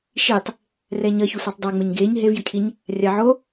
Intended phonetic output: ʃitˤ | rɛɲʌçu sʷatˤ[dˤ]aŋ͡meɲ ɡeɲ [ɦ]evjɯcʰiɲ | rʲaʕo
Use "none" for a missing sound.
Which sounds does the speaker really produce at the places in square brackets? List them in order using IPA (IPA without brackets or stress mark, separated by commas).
dˤ, ɦ